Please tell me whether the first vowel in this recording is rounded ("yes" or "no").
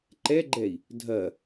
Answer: no